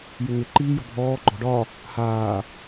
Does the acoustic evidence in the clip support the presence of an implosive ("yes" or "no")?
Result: no